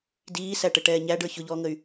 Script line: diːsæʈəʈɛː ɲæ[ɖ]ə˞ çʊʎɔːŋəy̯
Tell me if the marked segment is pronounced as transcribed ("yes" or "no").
yes